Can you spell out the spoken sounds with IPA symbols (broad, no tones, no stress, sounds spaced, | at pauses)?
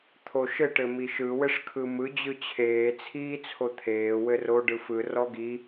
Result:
t̪ʰ o ʃ ɘ ʈ ɘ m i ʃ ɯ w ɘ ʂ kʰ ɯ m ɯ d͡ʑ ɯ t͡ɕʰ eː t͡sʰ iː t͡sʰ o t̪ʰ eː w ɘ r o ɖ ɯ f ɯ r ɔ ɡ i